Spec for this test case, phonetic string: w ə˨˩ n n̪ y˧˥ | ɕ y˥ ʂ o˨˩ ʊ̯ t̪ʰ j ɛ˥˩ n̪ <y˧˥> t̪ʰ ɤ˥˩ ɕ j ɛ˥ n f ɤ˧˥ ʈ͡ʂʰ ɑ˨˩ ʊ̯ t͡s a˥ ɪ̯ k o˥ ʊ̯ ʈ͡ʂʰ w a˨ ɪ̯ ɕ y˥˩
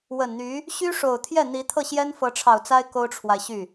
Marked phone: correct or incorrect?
incorrect